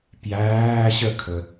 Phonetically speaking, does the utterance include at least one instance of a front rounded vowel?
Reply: no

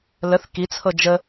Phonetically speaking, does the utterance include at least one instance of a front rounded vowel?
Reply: no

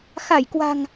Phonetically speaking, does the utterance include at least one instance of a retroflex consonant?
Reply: no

